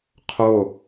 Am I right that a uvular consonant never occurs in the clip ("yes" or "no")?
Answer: no